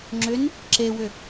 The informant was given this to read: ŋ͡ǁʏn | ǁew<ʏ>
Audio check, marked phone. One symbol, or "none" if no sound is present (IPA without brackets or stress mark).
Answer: ʏ